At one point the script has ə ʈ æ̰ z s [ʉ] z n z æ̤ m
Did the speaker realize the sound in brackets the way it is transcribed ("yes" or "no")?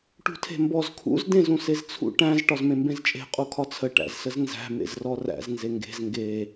no